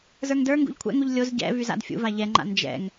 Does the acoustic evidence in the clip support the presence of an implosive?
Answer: no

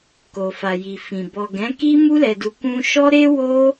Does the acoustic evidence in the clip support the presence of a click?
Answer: no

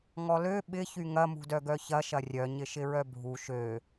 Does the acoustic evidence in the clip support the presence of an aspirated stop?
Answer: no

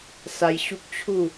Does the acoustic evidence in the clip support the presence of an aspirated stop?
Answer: yes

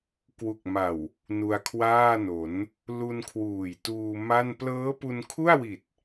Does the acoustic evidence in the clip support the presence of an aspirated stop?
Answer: yes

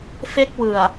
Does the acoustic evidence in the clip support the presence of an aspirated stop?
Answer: no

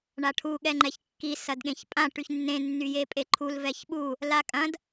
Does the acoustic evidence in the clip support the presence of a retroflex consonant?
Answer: yes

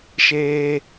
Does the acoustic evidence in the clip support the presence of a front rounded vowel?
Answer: no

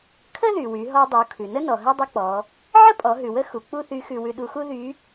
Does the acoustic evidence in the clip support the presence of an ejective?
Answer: yes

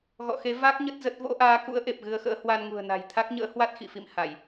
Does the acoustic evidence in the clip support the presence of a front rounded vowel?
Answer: no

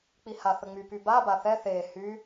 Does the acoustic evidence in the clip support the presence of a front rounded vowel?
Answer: yes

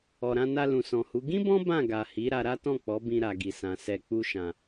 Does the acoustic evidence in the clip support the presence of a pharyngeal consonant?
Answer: no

